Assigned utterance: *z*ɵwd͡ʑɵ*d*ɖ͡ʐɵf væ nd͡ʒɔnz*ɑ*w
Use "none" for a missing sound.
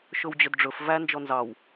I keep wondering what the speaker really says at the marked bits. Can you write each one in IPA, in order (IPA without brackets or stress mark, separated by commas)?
ʃ, d, ɑ